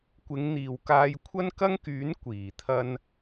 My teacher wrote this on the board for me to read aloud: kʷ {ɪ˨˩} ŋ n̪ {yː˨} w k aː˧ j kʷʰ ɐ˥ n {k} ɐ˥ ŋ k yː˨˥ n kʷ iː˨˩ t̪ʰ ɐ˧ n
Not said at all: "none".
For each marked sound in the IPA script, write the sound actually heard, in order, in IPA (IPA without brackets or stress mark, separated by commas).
ɪ˨˧, iː˨, k